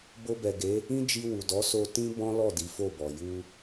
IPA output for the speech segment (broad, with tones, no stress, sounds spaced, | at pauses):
b o˧ b ɛ˨ ɡ e˨˦ | ĩ˦ d͡ʒ i˧ w u˨ d ɔ˨˦ s o˧ t ĩ˦ b ɔ̃˦ l ɔ˦˨ d i˨˦ f o˦˨ b ɔ˨ j u˧